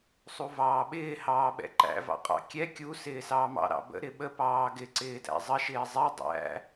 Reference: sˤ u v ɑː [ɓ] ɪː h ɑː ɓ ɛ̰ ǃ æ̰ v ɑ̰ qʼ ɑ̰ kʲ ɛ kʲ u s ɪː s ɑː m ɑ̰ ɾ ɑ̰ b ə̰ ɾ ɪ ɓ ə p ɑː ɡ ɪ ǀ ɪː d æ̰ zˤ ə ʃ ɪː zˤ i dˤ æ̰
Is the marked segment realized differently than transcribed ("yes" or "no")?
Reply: no